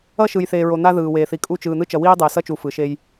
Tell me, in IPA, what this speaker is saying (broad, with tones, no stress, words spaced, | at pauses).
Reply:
ʌ˦ʃɯ˨jθeː˨ ɹo˨n̪a˦ ðɯː˨weː˨θi˨ kʼu˦ t͡ʃɯː˨n̪ɯ˦ t͡ʃʌ˨wiː˦dˤɛ˨ sʌ˦t͡ʃu˨ fɯ˨ʃe˦j